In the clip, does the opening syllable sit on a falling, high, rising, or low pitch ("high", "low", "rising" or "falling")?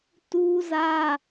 high